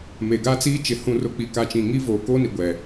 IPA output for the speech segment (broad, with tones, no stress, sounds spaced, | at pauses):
m e˨ ɡ a˦ t͡s iː˦ t͡ʃ ɪ˨ h ũ˨ r ʊ˨ k͡p i˨ k a˨ t͡ʃ ĩ˨ ŋ i˦ v oː˨ k oː˦ n i˨ ɡʷ ɛ˨